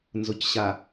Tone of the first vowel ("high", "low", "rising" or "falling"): low